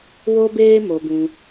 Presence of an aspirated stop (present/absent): absent